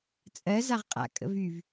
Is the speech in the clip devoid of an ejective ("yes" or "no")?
no